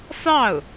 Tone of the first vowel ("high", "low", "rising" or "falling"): falling